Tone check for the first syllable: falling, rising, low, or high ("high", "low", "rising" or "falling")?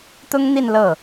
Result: high